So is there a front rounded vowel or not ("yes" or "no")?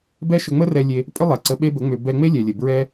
yes